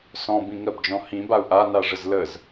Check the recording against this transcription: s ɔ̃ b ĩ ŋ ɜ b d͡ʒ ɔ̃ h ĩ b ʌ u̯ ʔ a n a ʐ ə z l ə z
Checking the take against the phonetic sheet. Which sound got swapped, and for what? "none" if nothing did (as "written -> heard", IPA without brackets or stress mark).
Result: ʌ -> a